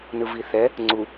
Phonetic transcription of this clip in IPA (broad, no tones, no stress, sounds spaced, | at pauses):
n ɯ v i θ ɛ | ŋ͡ǀ u